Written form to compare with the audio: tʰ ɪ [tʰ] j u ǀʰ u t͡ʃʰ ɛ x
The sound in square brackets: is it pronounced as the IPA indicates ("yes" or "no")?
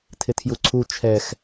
yes